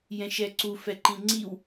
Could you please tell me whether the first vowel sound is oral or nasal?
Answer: nasal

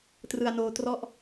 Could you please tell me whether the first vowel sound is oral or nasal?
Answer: oral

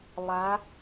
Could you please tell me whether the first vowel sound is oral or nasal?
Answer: oral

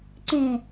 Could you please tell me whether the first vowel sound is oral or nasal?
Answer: nasal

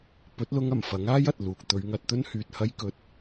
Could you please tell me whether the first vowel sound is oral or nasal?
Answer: oral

